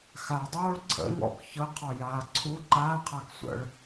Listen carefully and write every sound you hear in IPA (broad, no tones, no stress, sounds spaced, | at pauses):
x a dˤ oː ɭ ǀʰ ə̰ ŋ ɔ̰ k ç ɤ qʰ ɔ j aː ǀʰ u ǃ aː qʰ a k sʷ ə̰ ɭ